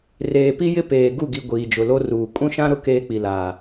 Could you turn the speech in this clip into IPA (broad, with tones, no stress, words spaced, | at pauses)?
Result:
reː˨pi˦jɪ˦ peː˨ɡu˦˨ɡi˨ ɡʷiː˨d͡ʒʊ˨lo˦ruː˨ kʼũ˦ʃã˦ ɾʊ˦ keː˦k͡pi˨laː˨